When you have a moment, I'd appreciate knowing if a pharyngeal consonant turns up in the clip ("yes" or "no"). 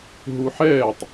yes